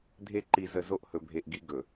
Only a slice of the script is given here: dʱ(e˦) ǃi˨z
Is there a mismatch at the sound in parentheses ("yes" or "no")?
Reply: no